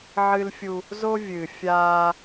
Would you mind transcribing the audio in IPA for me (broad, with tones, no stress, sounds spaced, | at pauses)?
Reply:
ʕ ɨ˦ l fʲ u˦ | z o˦ vʲ ɨ˨ fʲ aː˦